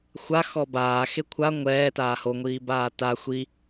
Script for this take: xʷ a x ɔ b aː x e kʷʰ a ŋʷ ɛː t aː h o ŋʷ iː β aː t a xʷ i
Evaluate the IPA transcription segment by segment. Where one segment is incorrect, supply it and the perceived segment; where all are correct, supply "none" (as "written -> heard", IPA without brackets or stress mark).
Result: β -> b